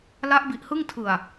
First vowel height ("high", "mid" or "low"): low